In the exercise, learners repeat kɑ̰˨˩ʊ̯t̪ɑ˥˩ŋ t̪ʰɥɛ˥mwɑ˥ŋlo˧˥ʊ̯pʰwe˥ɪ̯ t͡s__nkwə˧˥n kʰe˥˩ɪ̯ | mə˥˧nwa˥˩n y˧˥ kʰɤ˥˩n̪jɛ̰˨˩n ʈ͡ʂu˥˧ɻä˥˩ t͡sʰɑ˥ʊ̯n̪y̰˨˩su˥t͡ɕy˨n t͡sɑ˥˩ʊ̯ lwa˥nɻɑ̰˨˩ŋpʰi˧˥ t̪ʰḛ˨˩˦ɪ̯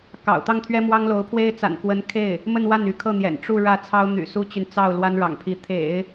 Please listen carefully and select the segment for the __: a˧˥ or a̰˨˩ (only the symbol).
a̰˨˩